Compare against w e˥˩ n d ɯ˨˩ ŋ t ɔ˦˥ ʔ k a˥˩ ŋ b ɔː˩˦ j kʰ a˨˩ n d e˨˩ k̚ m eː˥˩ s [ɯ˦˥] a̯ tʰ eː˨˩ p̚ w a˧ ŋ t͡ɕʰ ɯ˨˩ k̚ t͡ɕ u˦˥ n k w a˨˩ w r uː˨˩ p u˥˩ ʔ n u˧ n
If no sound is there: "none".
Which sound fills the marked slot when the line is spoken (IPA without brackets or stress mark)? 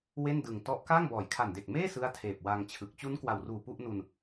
ɯ˥˩